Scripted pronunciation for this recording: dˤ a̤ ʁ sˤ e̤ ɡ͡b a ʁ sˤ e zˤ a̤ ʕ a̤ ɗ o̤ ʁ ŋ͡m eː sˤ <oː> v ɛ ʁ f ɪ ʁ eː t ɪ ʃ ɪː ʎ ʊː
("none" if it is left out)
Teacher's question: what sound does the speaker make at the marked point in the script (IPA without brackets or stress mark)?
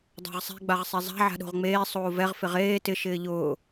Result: oː